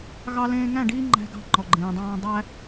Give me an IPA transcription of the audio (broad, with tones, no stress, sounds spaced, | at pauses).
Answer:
ɣ ɑ˦ l ẽː˦ ŋ æ̃˦˨ ɖ iː˦ ŋ͡ǃ æ̤˦ ɡ ɑ̤˦ ŋ͡ǃ ɔ˨ ɡ͡ǃ ẽː˨ dˤ ɑ̃ː˦ dˤ æ˦